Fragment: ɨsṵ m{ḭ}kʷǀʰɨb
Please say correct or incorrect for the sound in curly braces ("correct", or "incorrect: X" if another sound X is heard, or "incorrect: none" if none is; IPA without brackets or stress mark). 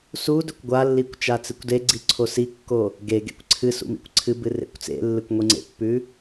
correct